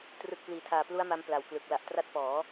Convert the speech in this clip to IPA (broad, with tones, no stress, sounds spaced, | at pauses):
t r ɯ˨˩ k̚ p l iː˩˦ tʰ aː˨˩ p l u˦˥ a̯ m a˧ m p l a˨˩ w k l ɯ˨˩ k̚ l a˨˩ ʔ t r a˦˥ t̚ p ɔː˩˦